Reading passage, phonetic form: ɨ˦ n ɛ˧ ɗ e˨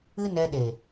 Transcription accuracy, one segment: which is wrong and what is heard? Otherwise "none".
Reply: none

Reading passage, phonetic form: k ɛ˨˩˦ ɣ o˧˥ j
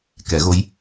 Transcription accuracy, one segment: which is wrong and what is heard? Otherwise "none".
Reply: none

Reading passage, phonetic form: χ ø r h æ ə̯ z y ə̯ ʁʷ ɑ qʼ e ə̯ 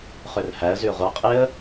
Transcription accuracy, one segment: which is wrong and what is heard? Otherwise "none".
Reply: none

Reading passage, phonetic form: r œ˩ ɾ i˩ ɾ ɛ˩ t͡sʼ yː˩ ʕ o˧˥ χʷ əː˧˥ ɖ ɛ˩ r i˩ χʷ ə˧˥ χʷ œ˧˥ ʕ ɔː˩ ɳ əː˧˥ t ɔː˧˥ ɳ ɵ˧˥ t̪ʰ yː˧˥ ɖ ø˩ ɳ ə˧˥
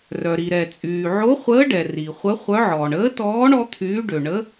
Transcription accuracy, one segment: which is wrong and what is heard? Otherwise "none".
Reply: ɵ˧˥ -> ɔ˧˥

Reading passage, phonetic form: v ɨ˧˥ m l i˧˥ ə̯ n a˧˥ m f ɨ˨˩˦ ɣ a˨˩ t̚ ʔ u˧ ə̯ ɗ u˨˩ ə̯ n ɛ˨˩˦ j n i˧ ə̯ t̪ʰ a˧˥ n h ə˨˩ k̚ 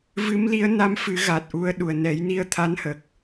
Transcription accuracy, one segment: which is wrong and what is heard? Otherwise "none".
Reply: none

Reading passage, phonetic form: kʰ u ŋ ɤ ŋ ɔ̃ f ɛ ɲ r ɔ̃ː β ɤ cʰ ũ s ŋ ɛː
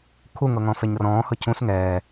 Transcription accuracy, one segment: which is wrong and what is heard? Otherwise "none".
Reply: β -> h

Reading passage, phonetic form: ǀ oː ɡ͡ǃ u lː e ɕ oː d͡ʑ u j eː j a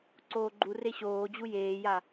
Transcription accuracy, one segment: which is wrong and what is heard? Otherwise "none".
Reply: lː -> r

